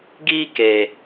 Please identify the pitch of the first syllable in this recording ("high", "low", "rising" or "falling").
high